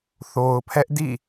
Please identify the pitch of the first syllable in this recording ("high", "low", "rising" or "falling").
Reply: low